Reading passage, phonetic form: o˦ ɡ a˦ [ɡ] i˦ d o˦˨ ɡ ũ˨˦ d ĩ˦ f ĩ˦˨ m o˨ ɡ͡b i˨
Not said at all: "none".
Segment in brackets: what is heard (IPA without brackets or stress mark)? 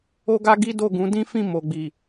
ɡ